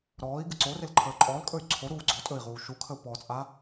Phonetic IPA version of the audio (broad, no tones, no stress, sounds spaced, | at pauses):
ɾ ɔː i̯ ɡ ɨ ǀ o r e l ǃʰ əː ǃʼ ɔː l kʼ ɵ y̯ ǀʰ o ɾ uː ɡ͡ǀ ɔː tʼ ɵ i̯ ʁ uː ʃ u kʰ ə u̯ p ɔ t͡sʼ a